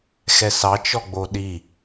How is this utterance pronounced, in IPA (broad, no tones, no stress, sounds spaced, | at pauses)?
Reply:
x ɛ s ɑ t͡ʃ ɔ ɡ͡b o ɗ i